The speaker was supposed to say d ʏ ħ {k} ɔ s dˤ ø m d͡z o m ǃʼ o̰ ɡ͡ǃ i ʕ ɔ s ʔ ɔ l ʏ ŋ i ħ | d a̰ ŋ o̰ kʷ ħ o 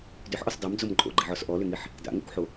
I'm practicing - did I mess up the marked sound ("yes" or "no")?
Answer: yes